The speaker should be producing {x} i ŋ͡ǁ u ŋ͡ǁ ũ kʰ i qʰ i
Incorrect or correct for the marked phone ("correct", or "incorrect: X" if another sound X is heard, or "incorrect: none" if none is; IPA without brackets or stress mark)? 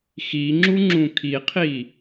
correct